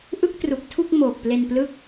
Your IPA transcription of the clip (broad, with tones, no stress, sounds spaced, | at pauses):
ʔ ɯ˥˩ k̚ t r u˨˩ k̚ tʰ u˥˩ k̚ m oː˨˩ k̚ p l e˧ n p l ɯ˦˥ k̚